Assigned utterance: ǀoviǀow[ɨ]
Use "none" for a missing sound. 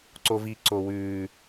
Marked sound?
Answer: ʉ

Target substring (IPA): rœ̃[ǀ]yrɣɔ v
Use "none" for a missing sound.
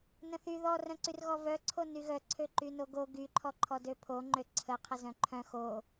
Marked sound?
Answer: ǀ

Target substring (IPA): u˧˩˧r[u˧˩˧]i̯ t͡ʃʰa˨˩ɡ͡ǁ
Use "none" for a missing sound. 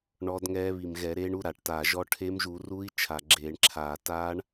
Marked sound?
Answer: u˧˥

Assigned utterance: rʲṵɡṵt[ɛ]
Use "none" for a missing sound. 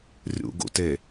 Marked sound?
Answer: e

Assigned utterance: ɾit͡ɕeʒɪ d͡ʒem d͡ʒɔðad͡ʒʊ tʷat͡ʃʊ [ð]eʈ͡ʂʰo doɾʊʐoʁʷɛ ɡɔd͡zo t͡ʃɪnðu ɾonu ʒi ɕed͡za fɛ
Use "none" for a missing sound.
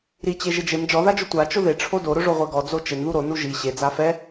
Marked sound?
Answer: ð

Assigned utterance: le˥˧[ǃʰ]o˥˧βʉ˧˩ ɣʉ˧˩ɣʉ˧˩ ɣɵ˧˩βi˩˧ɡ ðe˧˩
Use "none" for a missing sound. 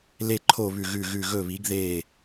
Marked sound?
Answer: ǃʰ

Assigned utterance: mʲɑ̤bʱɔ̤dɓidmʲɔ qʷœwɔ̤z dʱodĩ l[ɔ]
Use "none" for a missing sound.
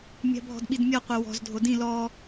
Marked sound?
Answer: ɔ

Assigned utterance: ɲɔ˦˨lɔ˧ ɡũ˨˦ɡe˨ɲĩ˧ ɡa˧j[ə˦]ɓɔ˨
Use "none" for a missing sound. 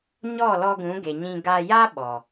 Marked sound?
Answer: a˦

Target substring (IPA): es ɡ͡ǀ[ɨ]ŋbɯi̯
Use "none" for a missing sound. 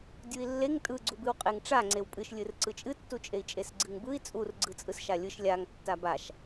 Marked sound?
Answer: ɨ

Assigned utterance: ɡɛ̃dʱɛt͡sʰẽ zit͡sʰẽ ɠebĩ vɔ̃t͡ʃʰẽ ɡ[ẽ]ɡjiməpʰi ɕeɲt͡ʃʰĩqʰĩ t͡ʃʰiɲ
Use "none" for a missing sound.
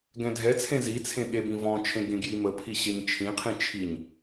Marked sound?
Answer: ẽ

